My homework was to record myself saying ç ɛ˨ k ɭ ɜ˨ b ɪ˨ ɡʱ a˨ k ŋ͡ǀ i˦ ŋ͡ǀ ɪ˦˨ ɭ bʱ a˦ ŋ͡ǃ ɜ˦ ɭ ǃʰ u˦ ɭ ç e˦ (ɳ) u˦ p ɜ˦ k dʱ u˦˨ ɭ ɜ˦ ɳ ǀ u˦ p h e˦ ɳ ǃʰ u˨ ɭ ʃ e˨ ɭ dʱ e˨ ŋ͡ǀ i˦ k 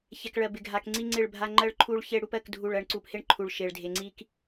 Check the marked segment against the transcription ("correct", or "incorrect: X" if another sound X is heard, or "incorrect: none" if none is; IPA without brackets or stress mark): incorrect: ɽ